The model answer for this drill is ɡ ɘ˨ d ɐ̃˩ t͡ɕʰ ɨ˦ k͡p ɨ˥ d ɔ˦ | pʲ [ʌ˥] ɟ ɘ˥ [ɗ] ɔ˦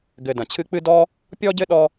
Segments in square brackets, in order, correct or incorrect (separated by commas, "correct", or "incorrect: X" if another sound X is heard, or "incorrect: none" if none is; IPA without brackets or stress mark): incorrect: ɔ˥, correct